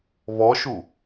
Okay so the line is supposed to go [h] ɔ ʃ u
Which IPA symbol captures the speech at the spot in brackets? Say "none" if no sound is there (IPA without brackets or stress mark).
β